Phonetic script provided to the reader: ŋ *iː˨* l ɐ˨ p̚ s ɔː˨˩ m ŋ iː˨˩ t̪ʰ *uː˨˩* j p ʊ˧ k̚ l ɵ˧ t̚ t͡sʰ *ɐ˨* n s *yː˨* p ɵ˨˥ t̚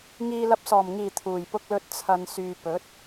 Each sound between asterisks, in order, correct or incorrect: correct, correct, correct, correct

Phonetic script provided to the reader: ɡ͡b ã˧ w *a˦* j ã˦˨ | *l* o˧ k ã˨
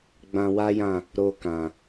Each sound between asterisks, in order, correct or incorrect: correct, incorrect: ɾ

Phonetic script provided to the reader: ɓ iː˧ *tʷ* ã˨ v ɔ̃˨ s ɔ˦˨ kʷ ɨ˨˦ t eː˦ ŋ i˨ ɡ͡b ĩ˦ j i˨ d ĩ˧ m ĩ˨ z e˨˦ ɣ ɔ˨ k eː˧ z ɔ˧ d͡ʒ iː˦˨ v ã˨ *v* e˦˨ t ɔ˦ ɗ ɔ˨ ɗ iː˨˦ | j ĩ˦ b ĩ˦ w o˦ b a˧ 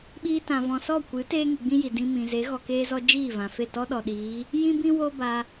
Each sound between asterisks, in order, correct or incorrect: incorrect: t, incorrect: f

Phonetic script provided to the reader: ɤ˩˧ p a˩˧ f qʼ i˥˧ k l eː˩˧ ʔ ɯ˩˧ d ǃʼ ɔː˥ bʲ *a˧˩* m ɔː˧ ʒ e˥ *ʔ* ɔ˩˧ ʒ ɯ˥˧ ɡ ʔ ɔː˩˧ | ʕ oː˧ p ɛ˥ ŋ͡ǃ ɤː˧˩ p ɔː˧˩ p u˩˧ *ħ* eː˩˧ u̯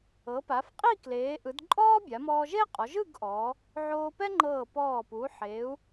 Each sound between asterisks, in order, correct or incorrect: incorrect: a˩˧, incorrect: qʼ, correct

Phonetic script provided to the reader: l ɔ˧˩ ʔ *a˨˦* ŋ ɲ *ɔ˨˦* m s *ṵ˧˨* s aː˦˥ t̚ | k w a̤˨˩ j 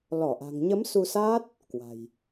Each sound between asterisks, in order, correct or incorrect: incorrect: a̤˨˩, incorrect: ə˨˦, incorrect: u˧

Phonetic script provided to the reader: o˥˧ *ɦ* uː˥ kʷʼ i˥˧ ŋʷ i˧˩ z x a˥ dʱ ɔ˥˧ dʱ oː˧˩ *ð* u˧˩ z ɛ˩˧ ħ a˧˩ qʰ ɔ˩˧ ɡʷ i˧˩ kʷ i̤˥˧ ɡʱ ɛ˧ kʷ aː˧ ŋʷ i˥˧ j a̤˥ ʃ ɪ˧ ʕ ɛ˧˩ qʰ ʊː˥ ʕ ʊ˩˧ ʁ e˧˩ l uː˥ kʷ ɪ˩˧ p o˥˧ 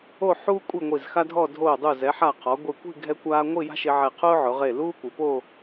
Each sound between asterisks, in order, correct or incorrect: incorrect: ħ, incorrect: dˤ

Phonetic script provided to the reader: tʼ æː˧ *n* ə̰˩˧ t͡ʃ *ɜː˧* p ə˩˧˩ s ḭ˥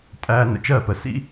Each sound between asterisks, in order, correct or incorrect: correct, incorrect: ɜː˥˩

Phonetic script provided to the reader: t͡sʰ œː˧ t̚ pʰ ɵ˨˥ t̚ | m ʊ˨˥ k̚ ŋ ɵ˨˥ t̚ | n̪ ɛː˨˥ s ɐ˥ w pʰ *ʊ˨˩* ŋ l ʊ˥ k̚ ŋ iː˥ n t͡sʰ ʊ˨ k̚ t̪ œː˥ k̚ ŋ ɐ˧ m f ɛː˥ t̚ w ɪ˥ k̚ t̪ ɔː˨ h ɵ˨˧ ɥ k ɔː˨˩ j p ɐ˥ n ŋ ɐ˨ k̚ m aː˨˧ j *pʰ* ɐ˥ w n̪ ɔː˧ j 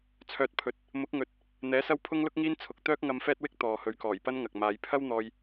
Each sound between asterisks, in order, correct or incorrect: incorrect: ʊ˥, correct

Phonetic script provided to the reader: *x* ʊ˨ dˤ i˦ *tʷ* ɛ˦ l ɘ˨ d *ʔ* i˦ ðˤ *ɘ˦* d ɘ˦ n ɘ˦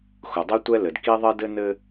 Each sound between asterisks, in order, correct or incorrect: correct, correct, incorrect: k, correct

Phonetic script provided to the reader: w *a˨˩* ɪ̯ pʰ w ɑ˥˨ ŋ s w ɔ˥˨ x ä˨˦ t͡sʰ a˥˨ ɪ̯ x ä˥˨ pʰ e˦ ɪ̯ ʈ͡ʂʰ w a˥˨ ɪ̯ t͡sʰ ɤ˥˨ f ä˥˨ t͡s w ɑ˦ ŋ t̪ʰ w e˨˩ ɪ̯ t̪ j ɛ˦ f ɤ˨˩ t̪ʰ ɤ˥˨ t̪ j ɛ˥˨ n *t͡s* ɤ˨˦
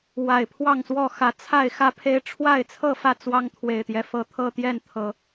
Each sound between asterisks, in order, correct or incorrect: correct, incorrect: t̪ʰ

